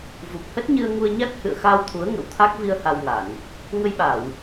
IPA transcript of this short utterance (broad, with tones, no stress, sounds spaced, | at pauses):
v u˨˩ p̚ h ə˦˥ t̚ ɲ ɨ˧ ə̯ ŋ u˧ ə̯ ɲ a˦˥ k̚ h ɨ̰˧˨ ə̯ x a˧ w t̪ʰ u˨˦ ə̯ ŋ ə̰˧˥ w t̪ʰ a˦˥ k̚ v i˧ ə̯ h a˧ w ŋ a˧˩˨ n | ŋ ə˧ j ɓ a˧˩˨ w